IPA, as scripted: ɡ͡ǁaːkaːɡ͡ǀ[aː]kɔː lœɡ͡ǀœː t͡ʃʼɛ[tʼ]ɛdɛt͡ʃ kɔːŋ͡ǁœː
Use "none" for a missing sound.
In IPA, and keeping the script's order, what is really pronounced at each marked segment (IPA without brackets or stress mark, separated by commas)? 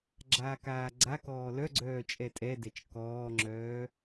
a, tʼ